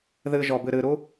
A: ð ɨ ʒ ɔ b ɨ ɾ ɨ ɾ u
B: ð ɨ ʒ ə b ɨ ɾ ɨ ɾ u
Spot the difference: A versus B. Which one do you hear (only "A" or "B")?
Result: A